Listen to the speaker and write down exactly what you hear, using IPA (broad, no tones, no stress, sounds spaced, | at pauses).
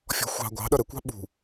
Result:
fʲ ɔ̤ xʷ ɑ̤ ɡʷ ɑ̤ ɗ ʌ ɾ ə kʷ ɑ̤ ɓ ṳ